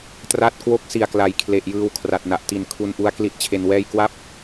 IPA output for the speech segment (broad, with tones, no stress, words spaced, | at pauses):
tra˥˩t̚ kwo˦˥k̚si˨˩a̯ kla˨˩jkʰle˨˩ʔjɯː˧w kʰra˨˩t̚na˨˩ʔti˨˩n kʰu˧nʔu˦˥a̯ kli˦˥t̚t͡ɕʰe˧nwɛː˥˩j kwa˥˩p̚